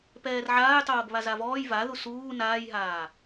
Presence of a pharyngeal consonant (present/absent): present